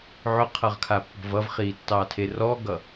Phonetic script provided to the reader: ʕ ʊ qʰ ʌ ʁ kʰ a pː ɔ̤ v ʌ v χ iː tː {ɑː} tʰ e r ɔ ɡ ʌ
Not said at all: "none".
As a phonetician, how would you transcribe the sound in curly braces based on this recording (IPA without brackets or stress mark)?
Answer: ɑː